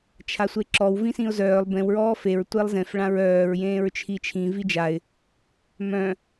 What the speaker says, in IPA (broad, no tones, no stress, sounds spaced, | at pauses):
t͡ʃʰ a sʷ e ǁ ɔ w v ĩ s ĩ ʊ̯ z œː lˠ b ẽ w ɹ ɔː f e ɹ tʷ e lˠ z ẽ f ɭ ã ɹ œː ɹ j ẽː ɹ t͡ʃʰ i t͡ʃʰ ĩ v i d͡ʒ a ɪ̯ | m œ̃